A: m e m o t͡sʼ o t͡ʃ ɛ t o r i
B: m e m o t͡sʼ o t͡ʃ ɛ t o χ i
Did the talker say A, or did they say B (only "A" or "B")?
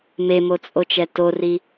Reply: A